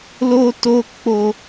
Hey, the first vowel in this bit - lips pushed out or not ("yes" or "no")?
yes